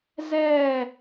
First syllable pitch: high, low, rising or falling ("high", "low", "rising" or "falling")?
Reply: falling